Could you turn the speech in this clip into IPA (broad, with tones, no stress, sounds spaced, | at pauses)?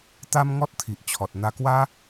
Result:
t̪ a˦ m ŋ ɔ˦ t̚ t̪ʰ i˨ ʔ t͡ɕʰ ɔ˨ t̚ n̪ a˧ k w a˦